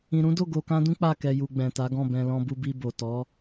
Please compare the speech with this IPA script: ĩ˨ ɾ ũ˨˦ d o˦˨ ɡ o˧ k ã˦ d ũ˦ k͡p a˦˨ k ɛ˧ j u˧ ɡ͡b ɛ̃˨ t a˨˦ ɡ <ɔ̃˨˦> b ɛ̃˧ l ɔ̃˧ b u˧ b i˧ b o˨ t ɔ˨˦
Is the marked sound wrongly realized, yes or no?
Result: yes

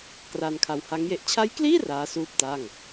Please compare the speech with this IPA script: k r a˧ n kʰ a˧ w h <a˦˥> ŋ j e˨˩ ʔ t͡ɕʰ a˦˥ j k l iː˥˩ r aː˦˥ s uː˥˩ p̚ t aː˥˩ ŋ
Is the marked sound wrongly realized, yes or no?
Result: no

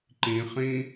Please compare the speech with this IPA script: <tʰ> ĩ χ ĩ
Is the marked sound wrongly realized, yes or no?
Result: yes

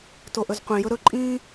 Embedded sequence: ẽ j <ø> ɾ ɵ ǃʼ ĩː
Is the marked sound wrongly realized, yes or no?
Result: yes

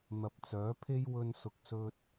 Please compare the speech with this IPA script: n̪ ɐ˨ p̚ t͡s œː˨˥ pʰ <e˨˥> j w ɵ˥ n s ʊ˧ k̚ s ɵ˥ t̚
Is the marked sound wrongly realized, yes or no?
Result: yes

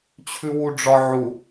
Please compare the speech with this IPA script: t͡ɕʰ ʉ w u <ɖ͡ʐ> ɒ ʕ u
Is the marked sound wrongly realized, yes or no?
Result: no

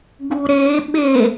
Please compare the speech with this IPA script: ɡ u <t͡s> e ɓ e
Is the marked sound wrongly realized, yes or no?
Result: yes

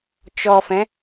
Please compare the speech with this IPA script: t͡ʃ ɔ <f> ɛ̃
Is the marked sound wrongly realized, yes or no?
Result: no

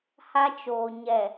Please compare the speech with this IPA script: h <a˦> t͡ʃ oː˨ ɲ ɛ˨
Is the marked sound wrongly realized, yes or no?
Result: no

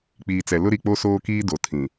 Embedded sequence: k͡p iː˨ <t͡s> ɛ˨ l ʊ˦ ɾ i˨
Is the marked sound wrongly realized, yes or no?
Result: no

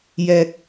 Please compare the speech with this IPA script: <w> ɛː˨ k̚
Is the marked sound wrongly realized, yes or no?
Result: yes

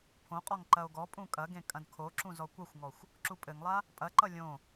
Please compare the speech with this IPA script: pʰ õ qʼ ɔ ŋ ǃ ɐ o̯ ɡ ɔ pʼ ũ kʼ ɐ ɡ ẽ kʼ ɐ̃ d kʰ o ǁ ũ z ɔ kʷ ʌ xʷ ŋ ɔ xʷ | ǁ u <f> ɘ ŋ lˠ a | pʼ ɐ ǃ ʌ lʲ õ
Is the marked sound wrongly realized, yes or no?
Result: yes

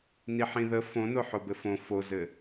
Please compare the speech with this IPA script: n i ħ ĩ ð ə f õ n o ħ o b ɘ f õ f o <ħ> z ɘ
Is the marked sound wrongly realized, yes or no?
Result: yes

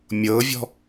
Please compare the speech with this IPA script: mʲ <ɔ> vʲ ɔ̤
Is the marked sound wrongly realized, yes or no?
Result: yes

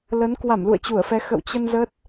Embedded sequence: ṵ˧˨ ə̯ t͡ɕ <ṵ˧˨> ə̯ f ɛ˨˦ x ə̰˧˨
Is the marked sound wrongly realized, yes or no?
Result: yes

